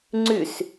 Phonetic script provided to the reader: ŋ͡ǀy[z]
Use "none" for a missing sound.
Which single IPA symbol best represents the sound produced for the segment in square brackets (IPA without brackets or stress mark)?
s